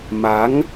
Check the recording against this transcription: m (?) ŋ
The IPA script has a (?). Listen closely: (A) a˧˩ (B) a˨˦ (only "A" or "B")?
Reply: B